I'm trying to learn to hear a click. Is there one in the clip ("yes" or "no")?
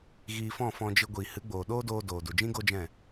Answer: no